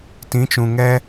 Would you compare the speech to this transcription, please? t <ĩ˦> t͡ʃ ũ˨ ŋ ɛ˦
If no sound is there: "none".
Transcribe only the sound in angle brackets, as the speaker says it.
ĩ˨˦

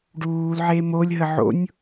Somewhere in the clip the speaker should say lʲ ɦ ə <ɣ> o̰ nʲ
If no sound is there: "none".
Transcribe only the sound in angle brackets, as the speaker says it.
ʕ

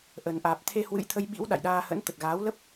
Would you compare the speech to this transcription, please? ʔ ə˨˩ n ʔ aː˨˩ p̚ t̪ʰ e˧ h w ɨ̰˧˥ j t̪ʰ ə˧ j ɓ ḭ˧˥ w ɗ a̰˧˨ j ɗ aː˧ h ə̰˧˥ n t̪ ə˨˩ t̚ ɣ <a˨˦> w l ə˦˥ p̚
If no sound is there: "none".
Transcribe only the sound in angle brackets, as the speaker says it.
aː˨˦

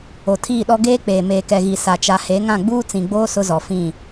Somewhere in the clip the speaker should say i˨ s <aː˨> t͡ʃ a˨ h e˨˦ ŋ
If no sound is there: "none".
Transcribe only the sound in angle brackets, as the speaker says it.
a˨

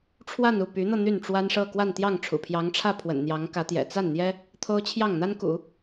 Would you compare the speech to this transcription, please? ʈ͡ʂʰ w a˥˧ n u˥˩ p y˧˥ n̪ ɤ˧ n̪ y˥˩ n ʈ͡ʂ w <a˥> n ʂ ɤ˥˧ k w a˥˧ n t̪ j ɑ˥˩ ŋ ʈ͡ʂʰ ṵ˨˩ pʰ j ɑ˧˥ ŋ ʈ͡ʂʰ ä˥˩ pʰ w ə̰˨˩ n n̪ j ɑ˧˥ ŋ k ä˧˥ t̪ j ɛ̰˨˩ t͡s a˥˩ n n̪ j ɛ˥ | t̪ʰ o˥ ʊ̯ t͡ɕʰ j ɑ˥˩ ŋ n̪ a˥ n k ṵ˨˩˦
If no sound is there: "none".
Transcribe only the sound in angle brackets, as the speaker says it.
a˥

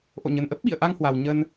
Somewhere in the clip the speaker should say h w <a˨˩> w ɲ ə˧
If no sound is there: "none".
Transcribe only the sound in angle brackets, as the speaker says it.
a˨˩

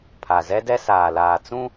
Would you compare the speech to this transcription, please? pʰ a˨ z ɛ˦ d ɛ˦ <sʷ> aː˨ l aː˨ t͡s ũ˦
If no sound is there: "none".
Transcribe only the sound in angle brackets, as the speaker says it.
s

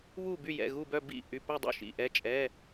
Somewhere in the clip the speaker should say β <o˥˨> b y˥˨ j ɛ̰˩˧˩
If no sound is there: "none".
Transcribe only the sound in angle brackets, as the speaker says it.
u˥˨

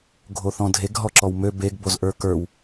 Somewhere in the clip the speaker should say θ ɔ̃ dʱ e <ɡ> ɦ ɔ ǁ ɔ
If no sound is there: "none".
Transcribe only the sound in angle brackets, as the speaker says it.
ɡ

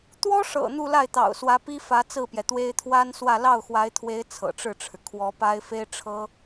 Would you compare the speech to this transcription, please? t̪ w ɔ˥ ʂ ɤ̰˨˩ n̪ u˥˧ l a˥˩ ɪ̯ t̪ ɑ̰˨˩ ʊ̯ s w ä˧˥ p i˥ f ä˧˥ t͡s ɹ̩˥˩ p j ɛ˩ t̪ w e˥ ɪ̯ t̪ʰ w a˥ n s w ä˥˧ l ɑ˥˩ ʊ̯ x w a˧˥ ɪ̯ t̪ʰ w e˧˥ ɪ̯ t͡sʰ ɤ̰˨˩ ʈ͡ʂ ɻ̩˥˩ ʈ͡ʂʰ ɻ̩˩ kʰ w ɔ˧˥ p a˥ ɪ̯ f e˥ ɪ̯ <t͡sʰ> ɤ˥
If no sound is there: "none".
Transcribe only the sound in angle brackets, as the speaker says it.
ʈ͡ʂʰ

